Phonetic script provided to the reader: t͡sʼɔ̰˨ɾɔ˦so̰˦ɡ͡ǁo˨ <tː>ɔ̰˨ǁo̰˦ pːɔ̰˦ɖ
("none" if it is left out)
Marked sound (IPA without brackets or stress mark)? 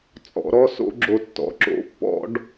tː